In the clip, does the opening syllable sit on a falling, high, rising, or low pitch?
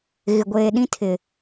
low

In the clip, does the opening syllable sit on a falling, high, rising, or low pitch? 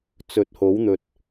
rising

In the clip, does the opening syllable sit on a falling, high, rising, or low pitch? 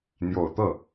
low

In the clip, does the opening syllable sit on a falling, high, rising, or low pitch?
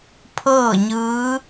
falling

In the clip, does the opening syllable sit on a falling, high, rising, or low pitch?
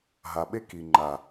low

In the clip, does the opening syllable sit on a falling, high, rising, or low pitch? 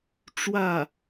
falling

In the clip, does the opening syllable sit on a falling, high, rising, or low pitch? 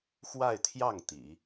falling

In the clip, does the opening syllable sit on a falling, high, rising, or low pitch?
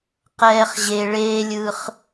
high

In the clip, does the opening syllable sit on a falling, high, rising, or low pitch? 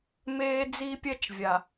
high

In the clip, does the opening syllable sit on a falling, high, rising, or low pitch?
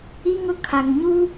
high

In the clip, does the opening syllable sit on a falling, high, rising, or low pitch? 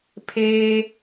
high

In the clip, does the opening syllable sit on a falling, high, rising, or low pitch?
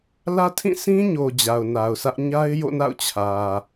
high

